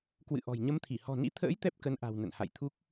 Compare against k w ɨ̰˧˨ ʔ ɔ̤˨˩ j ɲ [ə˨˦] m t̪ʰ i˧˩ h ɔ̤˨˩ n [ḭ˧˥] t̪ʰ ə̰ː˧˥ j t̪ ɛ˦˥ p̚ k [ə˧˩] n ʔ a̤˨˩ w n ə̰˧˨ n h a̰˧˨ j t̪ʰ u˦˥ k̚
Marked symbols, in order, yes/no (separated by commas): yes, yes, no